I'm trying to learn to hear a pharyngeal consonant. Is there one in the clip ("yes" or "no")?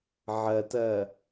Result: yes